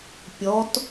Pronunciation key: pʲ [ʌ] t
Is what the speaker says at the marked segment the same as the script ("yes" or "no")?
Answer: no